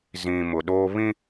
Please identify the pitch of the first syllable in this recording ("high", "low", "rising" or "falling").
low